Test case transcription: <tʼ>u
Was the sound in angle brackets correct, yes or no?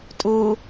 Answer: yes